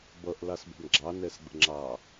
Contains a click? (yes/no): yes